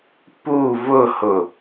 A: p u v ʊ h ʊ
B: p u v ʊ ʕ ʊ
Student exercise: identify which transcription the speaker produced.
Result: A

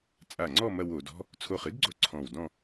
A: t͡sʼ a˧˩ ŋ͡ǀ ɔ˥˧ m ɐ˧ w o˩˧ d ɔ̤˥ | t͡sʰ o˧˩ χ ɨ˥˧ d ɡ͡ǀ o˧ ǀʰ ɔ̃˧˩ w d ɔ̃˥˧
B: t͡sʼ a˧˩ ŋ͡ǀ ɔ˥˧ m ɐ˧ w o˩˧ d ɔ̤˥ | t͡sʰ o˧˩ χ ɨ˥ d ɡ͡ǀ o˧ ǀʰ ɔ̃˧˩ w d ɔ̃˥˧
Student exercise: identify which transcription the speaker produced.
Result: B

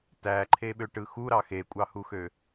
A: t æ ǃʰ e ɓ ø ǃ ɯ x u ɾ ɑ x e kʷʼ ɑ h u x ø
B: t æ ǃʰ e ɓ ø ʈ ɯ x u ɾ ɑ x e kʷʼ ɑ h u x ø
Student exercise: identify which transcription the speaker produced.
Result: B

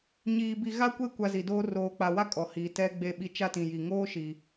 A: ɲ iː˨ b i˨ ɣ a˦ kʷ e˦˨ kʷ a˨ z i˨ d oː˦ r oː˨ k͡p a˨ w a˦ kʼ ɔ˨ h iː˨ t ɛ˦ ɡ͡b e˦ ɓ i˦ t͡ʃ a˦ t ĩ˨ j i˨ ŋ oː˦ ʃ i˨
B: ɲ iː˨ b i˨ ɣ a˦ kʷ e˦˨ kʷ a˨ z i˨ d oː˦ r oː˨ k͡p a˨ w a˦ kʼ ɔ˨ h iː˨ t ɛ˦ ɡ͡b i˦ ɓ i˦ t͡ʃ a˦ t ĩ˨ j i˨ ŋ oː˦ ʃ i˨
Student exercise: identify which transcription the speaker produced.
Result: A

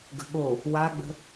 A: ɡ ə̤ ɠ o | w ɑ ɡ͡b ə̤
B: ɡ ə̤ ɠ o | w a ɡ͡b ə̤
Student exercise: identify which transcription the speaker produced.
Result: B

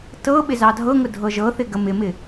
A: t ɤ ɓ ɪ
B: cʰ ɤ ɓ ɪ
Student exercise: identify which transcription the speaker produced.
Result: A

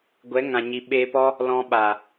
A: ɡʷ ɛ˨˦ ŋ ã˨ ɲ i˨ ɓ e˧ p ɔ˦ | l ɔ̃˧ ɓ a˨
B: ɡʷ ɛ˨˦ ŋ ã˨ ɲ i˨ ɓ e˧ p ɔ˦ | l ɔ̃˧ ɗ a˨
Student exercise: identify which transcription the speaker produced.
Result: A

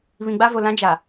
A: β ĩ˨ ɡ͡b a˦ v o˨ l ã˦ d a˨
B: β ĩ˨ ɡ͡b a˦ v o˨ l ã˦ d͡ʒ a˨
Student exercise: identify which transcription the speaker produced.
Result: B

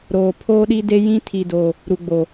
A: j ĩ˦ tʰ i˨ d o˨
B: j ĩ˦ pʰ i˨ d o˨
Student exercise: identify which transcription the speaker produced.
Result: A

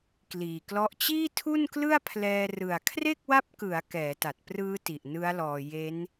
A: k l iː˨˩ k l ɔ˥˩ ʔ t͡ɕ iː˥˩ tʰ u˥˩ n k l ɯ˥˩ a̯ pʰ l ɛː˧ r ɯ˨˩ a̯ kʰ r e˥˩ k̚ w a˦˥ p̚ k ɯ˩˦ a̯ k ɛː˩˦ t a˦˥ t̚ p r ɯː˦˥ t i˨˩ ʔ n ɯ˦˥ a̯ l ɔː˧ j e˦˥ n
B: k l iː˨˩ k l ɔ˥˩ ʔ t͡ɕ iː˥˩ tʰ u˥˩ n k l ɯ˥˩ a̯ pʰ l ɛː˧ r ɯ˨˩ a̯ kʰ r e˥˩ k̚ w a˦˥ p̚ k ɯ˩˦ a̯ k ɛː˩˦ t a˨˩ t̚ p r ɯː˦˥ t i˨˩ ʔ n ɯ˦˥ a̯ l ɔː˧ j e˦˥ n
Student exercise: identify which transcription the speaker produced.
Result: B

